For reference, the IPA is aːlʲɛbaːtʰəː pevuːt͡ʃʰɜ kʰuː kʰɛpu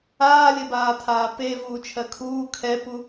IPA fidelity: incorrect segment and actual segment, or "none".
əː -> aː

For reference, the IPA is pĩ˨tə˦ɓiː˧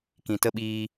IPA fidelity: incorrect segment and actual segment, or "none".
p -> k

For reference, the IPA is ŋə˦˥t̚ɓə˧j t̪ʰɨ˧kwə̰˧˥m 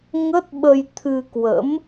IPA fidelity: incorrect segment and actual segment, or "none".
none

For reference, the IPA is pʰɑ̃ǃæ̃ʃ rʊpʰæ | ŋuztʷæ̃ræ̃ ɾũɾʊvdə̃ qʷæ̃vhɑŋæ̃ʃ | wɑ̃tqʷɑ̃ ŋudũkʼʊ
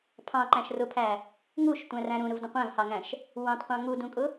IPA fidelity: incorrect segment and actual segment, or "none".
z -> ʃ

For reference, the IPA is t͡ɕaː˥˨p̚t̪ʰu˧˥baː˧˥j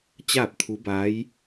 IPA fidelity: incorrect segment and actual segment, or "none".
none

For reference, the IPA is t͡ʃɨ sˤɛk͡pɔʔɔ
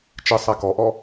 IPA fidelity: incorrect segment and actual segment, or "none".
k͡p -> k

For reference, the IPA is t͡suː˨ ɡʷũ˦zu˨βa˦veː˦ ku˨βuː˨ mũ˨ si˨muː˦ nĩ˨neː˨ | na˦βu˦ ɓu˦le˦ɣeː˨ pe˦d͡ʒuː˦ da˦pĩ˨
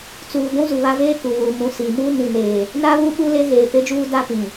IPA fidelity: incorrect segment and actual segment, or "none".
none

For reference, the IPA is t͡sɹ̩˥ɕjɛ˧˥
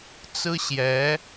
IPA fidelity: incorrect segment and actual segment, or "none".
none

